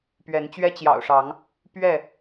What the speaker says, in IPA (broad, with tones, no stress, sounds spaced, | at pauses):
p ɥ ɛ˨˦ n t͡ɕ ɥ ɛ˦ t͡ɕ j ɑ̰˨˩ ʊ̯ ʂ ɑ˨˦ ŋ | p ɥ ɛ˥˨